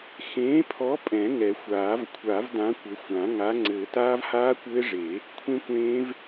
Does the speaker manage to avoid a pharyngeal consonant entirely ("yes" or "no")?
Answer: yes